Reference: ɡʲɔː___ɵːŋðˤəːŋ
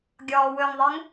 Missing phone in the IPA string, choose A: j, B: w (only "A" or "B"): B